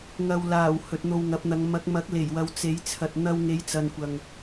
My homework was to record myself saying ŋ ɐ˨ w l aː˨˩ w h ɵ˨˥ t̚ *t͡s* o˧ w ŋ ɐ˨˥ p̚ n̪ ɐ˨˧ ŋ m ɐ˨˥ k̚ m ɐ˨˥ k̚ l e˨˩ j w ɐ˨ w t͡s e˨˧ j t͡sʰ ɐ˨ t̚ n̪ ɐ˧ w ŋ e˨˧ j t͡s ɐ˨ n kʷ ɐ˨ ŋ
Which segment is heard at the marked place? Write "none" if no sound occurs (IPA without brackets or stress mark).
n̪